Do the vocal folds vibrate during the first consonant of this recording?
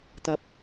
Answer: no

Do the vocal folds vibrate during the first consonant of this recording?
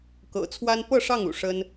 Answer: no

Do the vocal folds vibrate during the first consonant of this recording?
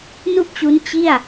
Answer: yes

